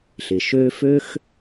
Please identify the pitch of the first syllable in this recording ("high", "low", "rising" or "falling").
low